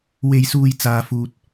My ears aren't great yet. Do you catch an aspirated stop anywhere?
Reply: no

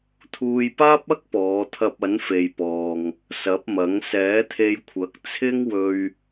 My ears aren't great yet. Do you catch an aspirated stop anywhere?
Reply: yes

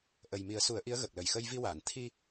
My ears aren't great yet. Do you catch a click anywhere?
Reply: no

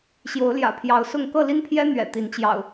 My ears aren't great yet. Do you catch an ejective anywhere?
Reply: no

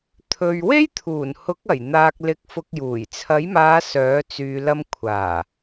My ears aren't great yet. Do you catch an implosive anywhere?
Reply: no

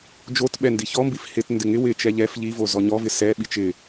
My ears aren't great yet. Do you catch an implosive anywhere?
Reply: yes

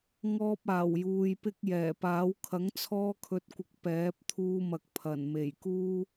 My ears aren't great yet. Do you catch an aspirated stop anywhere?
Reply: yes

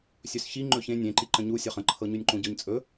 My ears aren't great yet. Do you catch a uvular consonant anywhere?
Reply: yes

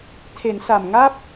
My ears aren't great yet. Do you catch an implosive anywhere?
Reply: no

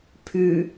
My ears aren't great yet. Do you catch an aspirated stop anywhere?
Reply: yes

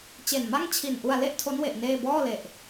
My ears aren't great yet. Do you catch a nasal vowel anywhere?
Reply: no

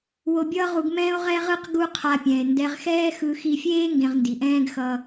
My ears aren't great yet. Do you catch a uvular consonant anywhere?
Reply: yes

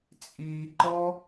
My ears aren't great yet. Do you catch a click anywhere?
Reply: yes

